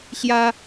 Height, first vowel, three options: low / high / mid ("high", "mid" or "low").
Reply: low